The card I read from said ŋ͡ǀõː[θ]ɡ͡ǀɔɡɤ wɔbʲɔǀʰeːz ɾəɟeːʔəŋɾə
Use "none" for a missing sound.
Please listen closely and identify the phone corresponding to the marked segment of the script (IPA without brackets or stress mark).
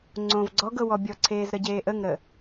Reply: v